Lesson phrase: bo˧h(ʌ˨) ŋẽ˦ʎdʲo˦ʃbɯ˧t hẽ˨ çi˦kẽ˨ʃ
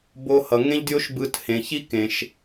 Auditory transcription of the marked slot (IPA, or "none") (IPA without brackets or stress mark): ʌ˨